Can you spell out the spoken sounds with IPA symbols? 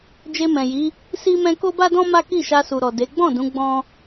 d͡ʒ e˧ m ɛ̃˨ j i˨˦ | s i˦ m ɛ̃˦ k o˦ b a˦ d ɔ̃˦ m a˦ k i˦˨ ʃ a˧ s u˨ ɾ ɔ˨ d e˨˦ ɡ͡b ɔ̃˦˨ d ũ˨˦ ɡ͡b ɔ̃˦

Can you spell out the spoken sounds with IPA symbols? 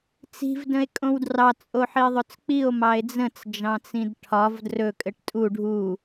t͡s i̤ v d ə̃ e̯ kʼ õ w d r ɑ t͡sʼ o ħ i e̯ ðˤ ɵ t͡s k͡p i o̯ m ɑ e̯ d͡z ə̃ t͡s d͡ʒ ɑ̃ t͡s ĩ d ʈʰ ɒ v d r ɵ kʼ ɘ ʈ tʼ u ɖʱ u

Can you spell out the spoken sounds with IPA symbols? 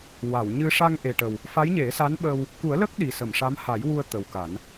w a˨˩˨ w ɲ ɨ˧ ʂ a˧ ŋ ʔ e˨˩ ʈ ə˨˩ w | f a˧˥ j ɲ e˨˩˦ s a˧˥ n ɓ əː˧ w | k u˨˩˦ ə̯ l ə˦˥ k̚ ɗ i˨˩ s ə˨˩˨ m ʂ a˧˥ m h a˨˩˦ j w u˧ ə̯ t̪ ə˨˩ w k a˨˩˦ n

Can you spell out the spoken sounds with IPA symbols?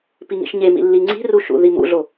p i ŋ ḭ ʃ ɲ e m ḭ lː i ŋ͡ǀ i̤ r u ʃ ṵ ð i m ṵ ɮ o

